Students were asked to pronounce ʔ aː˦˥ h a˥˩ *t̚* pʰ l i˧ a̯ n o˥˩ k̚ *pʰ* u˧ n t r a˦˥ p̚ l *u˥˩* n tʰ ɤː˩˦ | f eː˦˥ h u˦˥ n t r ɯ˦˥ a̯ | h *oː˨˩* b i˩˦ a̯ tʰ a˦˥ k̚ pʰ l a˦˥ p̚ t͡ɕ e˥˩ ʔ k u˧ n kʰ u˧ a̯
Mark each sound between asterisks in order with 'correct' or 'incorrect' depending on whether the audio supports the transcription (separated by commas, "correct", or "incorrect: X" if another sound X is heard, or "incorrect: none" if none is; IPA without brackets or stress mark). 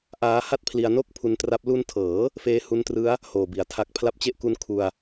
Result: correct, correct, incorrect: u˧, correct